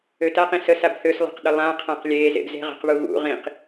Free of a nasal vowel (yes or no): no